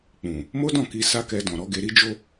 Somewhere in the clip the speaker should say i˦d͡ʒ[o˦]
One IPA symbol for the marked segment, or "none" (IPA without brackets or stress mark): o˦